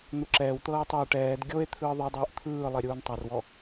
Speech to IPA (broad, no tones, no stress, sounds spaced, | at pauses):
n̪ u ǁ ɛː w t̪ ɤː tˤ o e̯ ʈ ɛː d ɡʲ o e̯ t̪ʰ ɯː ðˤ e dˤ uː ʔ t̪ʰ ɯː lˠ e ɾʲ uː n tˤ a r w ɔ